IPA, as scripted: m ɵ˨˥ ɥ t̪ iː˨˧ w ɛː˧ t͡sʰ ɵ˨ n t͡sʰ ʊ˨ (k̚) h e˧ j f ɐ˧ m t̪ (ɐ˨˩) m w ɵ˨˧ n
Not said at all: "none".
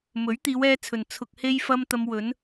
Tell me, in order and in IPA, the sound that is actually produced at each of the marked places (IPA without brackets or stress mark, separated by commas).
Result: k̚, ɐ˧